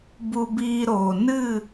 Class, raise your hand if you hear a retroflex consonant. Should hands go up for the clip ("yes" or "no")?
no